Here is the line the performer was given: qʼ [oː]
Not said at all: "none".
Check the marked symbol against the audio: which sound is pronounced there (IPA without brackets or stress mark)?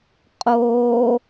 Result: oː